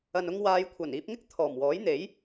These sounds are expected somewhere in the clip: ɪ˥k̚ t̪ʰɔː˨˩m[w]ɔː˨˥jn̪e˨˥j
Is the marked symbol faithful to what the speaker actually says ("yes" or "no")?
yes